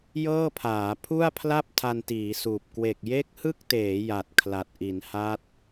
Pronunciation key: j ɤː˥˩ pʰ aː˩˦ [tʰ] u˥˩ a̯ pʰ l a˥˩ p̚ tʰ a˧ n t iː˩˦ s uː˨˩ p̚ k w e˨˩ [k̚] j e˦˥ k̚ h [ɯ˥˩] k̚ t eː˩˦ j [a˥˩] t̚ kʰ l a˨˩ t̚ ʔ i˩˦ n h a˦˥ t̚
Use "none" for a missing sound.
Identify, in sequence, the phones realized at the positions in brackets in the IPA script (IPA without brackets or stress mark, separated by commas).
pʰ, k̚, ɯ˥˩, a˨˩